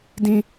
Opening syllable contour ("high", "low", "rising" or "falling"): high